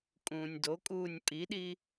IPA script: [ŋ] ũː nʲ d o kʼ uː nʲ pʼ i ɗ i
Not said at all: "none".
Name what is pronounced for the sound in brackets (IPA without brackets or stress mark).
kʼ